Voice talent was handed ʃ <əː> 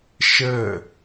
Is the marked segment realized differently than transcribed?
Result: no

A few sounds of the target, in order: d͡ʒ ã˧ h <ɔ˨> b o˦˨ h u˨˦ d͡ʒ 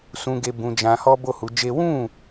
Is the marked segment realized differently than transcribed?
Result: yes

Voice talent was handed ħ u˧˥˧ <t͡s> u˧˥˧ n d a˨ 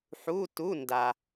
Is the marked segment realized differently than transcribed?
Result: yes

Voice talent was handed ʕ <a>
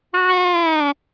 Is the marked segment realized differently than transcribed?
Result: yes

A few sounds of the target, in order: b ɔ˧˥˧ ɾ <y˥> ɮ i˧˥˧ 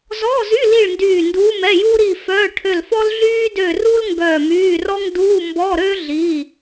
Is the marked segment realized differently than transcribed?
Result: yes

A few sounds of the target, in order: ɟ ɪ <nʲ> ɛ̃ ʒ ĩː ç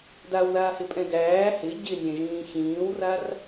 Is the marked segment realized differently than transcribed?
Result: no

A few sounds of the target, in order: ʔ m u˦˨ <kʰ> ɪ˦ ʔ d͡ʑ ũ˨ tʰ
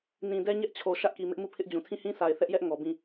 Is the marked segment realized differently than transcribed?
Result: yes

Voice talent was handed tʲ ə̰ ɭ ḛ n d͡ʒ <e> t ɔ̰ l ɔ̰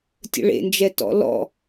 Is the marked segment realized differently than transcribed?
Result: yes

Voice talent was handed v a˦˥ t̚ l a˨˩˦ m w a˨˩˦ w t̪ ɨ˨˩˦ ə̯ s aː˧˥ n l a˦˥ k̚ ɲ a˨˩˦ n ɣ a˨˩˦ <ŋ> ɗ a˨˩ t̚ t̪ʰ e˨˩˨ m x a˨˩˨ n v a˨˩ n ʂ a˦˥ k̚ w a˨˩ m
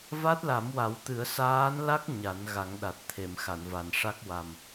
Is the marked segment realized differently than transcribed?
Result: no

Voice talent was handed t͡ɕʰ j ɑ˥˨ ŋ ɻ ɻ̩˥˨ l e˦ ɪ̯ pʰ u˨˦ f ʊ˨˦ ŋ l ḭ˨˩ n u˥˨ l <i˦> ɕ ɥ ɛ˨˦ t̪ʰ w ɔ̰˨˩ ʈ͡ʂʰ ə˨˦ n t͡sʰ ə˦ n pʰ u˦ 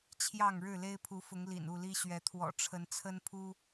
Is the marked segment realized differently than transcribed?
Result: no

